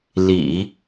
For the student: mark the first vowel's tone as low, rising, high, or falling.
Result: low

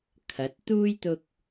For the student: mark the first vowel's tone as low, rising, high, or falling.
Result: rising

